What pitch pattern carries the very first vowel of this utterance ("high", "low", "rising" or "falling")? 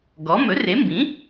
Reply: rising